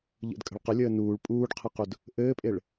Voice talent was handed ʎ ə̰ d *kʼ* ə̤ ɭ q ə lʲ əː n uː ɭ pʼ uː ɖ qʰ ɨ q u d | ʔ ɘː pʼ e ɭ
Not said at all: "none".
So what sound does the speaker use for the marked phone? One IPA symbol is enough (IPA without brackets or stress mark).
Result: kʼ